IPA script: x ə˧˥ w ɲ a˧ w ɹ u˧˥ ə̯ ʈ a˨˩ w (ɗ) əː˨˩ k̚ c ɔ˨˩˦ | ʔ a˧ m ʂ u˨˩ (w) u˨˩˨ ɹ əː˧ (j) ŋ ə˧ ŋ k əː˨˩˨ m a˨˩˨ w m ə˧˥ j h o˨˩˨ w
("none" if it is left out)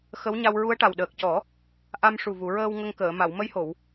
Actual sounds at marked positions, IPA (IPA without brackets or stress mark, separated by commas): ɗ, v, w